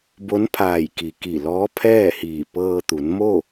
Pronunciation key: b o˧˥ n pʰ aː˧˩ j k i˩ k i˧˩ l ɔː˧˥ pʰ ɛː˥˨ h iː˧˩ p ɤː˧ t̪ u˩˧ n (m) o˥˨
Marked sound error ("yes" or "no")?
no